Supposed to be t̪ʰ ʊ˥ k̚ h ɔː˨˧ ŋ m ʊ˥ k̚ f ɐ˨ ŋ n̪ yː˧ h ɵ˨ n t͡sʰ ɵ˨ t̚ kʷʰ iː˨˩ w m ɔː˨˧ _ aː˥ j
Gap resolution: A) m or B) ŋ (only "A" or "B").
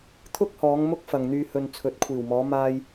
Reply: A